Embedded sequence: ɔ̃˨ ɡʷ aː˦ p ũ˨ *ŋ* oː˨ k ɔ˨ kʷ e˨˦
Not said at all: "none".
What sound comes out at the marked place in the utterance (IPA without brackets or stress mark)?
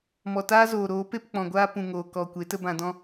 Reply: ŋ